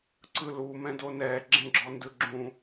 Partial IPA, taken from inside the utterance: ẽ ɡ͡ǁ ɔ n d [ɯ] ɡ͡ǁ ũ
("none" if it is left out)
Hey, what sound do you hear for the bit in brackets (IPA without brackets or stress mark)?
ɯ